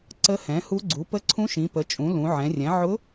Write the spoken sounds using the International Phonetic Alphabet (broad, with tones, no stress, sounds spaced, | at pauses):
ǀ ə˧˥ h ɛ̃˩˥ h u˧˥ ɡ͡ǀ u˩˥ p ə˧˥ ǀʰ ũ˧˥ ʃ ĩ˩˧ p ə˩˥ t͡ʃʼ ũ˩˥ l ũ˩˧ ʕ ɛ̃˩˧ rʲ ɛ̃˩˥ ʕ ʊ˧˥